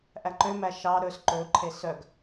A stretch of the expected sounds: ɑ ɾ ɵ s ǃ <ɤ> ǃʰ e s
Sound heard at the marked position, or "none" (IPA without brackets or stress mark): ɵ